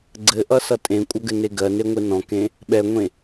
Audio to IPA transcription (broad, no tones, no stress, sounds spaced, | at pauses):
ɡ͡ǀ ɘ ʔ ʌ s ʌ tʼ ẽ kʷʼ ɐ ɡ ɘ n e ɡ ɜ n e ŋʷ e n ɔ̃ k ẽ | ɓ ɛ ŋʷ ẽ